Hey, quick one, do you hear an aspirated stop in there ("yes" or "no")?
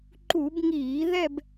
no